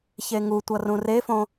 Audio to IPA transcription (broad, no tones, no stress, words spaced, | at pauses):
çeŋutʷʌ rũrefõ